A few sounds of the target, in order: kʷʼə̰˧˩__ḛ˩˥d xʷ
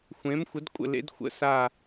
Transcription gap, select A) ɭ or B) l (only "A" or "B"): B